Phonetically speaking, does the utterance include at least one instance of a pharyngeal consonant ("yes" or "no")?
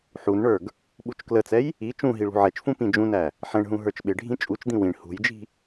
yes